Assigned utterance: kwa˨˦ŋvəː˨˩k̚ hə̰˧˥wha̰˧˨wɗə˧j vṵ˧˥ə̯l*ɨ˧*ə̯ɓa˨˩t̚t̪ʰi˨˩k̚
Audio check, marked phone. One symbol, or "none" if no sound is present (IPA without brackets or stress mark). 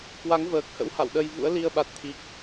i˧